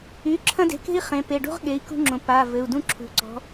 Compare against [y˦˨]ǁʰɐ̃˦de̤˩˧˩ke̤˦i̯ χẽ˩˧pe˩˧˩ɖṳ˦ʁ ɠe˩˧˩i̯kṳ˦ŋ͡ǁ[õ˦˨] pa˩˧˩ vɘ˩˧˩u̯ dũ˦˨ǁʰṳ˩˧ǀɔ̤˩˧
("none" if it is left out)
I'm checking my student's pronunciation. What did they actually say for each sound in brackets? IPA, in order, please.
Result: y˩˧˩, õ˩˧

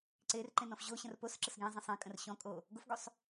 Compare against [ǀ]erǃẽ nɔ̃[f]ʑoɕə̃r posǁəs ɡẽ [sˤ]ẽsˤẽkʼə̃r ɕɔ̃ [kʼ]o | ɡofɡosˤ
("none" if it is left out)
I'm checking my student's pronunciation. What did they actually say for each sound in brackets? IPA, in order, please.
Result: ǀ, f, zˤ, kʼ

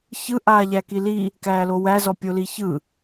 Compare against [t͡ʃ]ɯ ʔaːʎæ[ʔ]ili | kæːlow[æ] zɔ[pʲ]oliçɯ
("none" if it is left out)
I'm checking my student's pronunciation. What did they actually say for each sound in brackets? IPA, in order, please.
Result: ç, k, æ, pʲ

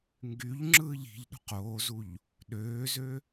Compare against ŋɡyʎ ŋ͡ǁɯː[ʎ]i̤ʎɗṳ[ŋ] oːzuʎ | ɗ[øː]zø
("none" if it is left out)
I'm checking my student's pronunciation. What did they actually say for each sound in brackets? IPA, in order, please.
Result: ʎ, q, øː

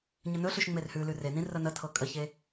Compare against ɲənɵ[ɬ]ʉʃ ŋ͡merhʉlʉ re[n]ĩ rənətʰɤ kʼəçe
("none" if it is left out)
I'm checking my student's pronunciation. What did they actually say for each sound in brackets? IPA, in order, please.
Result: ɬ, n

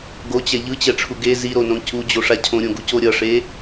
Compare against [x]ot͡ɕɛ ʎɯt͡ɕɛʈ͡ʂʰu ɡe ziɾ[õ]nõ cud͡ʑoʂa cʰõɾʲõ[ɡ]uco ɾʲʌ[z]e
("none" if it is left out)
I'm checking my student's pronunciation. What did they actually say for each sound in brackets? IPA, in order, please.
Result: ɡ, o, ɡ, ʂ

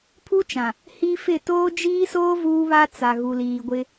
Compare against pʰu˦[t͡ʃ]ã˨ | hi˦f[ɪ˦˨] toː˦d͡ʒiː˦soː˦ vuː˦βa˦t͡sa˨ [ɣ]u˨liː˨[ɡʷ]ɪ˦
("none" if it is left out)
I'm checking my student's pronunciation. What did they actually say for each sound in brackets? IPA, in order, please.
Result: t͡ʃ, ɪ˦˨, ɣ, ɡʷ

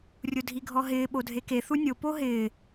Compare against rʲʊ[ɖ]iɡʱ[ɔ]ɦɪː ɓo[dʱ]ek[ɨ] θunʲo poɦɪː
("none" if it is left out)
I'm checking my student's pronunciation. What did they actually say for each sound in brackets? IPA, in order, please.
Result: dʱ, ɔ, dʱ, e

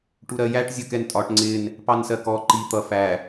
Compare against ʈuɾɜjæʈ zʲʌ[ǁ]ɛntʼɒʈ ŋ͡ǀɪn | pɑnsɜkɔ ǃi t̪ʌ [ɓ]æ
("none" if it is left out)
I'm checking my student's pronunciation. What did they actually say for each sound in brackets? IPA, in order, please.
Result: k, f

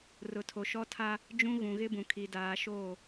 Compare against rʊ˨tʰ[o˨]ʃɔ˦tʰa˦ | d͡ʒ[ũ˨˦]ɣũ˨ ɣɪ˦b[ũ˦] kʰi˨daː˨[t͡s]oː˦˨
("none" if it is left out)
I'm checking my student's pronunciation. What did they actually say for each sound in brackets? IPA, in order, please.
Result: o˨, ũ˦, ũ˨, ʃ

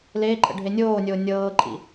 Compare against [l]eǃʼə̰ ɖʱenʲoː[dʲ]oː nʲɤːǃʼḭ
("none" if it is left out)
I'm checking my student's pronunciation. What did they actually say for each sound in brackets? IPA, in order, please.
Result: l, nʲ

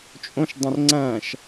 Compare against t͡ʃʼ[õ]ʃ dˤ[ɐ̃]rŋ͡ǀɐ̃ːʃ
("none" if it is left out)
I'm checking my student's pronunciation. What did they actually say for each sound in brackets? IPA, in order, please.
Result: õ, ɐ̃

